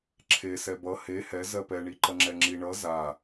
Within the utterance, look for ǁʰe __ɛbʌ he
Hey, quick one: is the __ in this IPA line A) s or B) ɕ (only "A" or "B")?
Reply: A